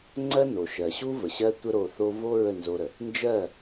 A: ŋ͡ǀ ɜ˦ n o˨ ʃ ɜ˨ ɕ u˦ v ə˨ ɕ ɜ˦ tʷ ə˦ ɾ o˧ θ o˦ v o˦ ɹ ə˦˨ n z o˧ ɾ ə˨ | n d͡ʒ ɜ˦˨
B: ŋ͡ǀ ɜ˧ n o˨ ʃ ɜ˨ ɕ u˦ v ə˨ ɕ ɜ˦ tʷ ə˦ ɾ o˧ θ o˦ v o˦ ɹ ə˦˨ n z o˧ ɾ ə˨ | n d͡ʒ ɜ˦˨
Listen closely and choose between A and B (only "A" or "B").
A